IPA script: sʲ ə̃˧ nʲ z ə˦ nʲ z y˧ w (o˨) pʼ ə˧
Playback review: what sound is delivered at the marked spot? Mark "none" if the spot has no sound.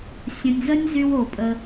o˨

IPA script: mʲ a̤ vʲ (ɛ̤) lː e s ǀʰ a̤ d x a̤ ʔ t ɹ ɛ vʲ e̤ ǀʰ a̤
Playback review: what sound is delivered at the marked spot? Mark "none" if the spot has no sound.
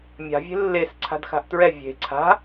e̤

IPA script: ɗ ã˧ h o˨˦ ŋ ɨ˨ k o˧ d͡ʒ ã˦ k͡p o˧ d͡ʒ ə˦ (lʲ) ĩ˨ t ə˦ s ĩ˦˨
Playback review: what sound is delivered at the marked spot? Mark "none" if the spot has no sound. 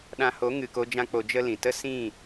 l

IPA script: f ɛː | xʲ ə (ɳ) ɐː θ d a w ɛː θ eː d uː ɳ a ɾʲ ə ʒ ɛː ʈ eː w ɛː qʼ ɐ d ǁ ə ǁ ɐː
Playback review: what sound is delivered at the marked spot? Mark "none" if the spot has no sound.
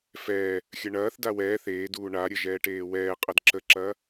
ɳ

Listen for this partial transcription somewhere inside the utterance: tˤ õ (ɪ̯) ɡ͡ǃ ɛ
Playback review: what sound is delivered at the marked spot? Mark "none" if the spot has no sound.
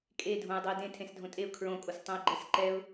ɪ̯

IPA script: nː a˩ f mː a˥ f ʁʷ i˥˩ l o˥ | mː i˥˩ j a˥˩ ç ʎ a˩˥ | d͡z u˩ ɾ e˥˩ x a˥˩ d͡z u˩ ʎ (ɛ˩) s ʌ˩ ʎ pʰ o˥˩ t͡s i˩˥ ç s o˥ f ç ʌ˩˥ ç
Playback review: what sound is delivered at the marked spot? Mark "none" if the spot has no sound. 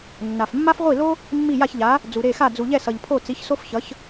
ɛ˥˩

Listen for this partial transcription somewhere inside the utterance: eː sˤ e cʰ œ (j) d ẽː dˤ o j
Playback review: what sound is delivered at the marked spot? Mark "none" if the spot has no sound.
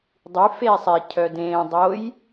none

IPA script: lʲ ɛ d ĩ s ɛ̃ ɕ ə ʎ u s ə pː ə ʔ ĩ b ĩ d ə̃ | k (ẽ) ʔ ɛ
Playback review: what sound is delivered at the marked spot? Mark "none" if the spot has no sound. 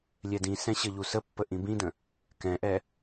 ɛ̃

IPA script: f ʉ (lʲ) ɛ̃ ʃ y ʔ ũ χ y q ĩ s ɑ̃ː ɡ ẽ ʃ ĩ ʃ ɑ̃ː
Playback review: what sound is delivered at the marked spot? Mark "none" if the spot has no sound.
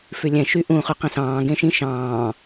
lʲ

